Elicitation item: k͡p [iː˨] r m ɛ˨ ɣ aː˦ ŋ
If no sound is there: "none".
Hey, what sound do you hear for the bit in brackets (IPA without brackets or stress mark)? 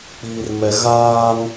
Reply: iː˨